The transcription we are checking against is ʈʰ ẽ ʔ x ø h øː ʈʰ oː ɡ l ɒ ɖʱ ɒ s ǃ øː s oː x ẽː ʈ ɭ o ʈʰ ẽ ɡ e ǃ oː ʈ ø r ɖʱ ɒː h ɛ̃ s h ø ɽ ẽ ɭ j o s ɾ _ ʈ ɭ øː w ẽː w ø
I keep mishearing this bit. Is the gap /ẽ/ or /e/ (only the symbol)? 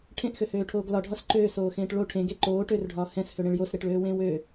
e